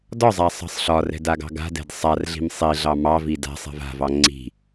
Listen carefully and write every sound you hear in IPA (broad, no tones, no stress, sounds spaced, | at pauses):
d ɒ zˤ a sˤ ɑ̤ sˤ ɬ ɒ r ɛ̤ d a ɡ ɑ̤ ɡ a̤ d ɛ̤ d sˤ a r ɮ i̤ m sˤ i ɮ ɑ m ɑ v i d a̤ sˤ ɛ̤ v a̤ v ɑ ŋ͡ǀ i̤